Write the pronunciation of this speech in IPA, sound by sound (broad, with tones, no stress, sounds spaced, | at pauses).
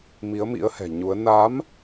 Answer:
m i˨˦ ə̯ m ḭ˧˥ ə̯ h ɛ̤˨˩ ɲ u˨˦ ə̯ n a˨˦ m